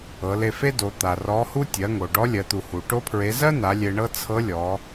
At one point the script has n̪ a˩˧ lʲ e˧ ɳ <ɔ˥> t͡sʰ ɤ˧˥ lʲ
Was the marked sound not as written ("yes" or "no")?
yes